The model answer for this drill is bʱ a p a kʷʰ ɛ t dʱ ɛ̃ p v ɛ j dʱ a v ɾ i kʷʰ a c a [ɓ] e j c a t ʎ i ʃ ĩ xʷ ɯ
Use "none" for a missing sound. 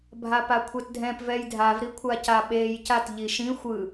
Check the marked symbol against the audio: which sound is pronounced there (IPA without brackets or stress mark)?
ɓ